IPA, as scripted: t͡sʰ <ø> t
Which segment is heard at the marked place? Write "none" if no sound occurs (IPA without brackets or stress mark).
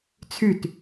y